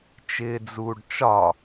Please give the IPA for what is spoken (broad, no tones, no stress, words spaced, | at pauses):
t͡ʃɪːd͡zuːɖt͡ʃɒ